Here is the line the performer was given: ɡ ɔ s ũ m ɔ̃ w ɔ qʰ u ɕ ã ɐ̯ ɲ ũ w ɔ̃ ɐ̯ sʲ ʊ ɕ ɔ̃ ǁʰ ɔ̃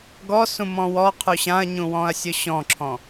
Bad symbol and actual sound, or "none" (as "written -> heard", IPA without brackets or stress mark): none